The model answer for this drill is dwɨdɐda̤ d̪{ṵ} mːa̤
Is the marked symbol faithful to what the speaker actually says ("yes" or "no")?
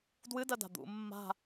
yes